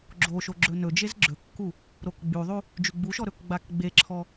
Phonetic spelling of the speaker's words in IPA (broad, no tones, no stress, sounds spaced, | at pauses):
ɡ͡ǁ o ʃ o ɡ͡ǁ ɵ n ɵ d͡ʒ e z ɡ͡ǁ ɵ kː u | ɾ o k ɡ͡b y ðˤ y | d͡ʒ y ɡ͡b u ʃ ɔ ɾ ɵ k ɡ͡b a k ɡ͡b e ǁʰ ɔ